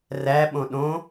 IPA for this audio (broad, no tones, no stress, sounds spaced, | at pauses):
r æ ɓ õ ɗ õ